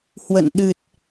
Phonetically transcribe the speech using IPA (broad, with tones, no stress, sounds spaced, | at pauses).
h w ə̰˧˨ n ɗ ɨ˨˩ t̚